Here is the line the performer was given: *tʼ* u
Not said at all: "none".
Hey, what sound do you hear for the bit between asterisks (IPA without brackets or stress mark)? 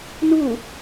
n